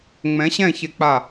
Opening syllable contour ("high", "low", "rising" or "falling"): rising